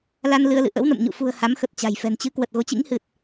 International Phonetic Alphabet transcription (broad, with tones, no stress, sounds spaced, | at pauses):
l a˧ n l ɨ˧ ə̯ l ɨ̰˧˨ ʔ ə̰˧˥ w n ə̰˧˨ m ɲ ṵ˧˨ f ṳ˨˩ ə̯ h a˨˦ m x ə˨˩ t̚ t͡ɕ a̤˨˩ j f ɛ̤˨˩ n t͡ɕ ɨ˨˦ k w ə˨˩ t̚ ɣ o˨˦ t͡ɕ ḭ˧˥ ŋ h ɨ˨˩ t̚